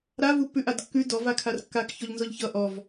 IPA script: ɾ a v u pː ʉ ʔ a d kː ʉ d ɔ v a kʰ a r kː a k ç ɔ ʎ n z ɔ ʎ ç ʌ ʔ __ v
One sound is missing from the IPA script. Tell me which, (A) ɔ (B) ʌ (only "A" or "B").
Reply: A